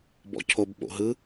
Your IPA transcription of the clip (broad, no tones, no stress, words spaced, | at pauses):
bɔ̰cʰob ɓo̰ɦɯ